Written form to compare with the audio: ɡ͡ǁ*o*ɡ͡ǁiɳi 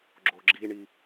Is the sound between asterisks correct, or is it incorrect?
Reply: correct